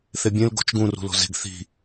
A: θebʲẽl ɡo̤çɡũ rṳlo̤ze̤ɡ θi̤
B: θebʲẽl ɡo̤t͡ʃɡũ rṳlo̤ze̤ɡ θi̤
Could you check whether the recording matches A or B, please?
B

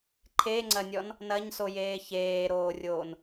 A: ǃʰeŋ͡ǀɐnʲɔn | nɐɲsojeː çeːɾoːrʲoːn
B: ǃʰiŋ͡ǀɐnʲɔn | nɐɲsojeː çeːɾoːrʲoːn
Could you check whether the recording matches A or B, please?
A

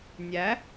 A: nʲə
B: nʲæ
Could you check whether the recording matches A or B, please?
B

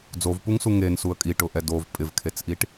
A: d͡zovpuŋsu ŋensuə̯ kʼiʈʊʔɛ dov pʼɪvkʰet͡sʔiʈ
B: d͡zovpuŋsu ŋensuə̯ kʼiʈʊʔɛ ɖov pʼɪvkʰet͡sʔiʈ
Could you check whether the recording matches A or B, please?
A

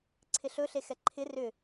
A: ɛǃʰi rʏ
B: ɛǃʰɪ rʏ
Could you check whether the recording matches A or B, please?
B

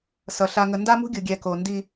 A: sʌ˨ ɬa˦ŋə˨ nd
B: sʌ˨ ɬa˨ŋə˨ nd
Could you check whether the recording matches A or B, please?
B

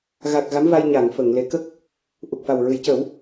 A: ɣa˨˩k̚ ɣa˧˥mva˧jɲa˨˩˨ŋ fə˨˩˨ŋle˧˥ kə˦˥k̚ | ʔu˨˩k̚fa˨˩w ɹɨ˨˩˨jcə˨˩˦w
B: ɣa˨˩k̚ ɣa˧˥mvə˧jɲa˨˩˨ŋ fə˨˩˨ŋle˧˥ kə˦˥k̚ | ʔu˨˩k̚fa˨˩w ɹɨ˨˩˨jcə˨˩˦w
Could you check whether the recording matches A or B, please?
A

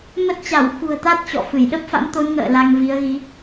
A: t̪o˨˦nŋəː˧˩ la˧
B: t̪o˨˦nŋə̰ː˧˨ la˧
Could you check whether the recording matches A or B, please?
B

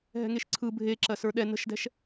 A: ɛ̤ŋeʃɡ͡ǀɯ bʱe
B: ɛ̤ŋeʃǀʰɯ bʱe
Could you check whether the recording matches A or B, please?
B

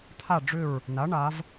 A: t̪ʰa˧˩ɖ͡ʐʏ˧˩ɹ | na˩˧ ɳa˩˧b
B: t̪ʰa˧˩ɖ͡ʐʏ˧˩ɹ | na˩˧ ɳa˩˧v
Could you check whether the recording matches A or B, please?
B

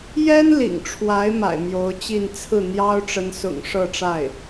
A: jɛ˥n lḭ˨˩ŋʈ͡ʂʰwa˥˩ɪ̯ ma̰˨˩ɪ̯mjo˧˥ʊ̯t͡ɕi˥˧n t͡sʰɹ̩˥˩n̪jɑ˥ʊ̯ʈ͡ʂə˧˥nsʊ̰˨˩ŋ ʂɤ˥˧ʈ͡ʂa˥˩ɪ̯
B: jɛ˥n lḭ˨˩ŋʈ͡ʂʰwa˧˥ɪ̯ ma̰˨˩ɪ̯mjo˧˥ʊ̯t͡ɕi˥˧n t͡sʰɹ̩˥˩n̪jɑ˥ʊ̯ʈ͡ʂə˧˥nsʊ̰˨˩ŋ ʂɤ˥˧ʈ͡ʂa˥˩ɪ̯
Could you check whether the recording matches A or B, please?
B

